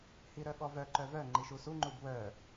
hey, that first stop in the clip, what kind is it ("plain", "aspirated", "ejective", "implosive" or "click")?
implosive